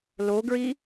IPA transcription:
l o ɡ ɹ i

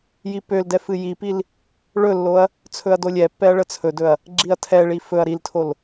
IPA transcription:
j i p ø l d ɛ f ɨ j i p i l | ɭ ɵ lː o ɐ̯ | t͡sʰ ɵ ɐ̯ d o lʲ ɛ pː ɛ ɐ̯ ɭ ə t͡sʰ ɵ d ɵ ɐ̯ | ɡ͡ǁ i ɐ̯ tʰ ɛ ɭ i f ɵ ɐ̯ ɾ i l tʰ o l

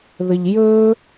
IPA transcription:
ð ə ʎ j ɵː

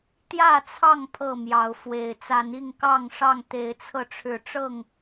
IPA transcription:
t̪ j ä˥˨ t͡sʰ ɑ˥˨ ŋ pʰ ɤ˥˨ m j ɑ˨˦ ʊ̯ f w e˨˩ ɪ̯ t͡s a˨˦ n i˥˨ ŋ k ɑ˥˨ ŋ ʂ ɑ˥˨ ŋ t̪ e˨˦ ɪ̯ t͡sʰ ɤ˧ ʈ͡ʂʰ ɻ̩˨˦ ʈ͡ʂ ɤ˥˨ ŋ

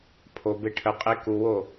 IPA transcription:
pʰ o b e ʈʰ ə qʼ e k u w o

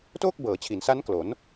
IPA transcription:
t oː˥˩ k̚ b ɤː˩˦ t͡ɕʰ i˩˦ n s a˦˥ n k l o˩˦ n

